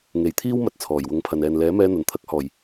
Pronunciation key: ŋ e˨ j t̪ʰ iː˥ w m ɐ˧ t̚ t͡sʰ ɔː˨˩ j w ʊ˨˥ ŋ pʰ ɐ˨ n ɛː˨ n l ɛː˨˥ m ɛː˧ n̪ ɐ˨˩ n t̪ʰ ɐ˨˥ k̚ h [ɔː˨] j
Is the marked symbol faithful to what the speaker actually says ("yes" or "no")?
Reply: no